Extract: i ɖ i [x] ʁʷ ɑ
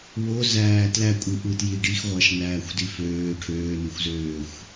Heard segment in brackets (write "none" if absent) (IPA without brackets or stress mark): x